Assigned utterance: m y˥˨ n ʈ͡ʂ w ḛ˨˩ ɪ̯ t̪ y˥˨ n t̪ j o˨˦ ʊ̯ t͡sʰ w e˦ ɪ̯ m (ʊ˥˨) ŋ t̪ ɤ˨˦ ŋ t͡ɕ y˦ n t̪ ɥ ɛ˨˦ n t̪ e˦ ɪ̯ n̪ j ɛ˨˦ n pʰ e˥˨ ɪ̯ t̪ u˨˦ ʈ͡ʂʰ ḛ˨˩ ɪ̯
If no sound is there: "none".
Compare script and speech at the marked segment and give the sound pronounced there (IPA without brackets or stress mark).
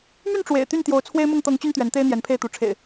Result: ʊ˥˨